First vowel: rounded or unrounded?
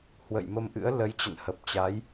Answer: unrounded